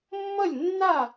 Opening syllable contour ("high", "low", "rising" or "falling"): falling